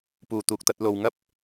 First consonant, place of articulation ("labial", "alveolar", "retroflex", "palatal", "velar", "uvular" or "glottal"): labial